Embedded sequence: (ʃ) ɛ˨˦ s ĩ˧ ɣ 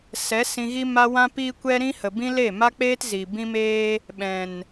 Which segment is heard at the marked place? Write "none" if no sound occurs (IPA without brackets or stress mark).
s